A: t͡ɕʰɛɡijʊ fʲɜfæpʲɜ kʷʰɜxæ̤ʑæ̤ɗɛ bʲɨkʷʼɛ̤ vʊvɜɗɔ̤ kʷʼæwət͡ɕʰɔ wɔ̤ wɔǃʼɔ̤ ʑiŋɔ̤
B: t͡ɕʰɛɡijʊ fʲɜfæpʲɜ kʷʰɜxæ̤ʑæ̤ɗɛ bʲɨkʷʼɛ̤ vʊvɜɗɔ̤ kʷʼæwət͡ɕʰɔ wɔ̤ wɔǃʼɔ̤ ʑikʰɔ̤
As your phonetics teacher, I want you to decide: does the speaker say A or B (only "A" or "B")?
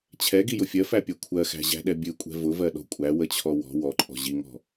A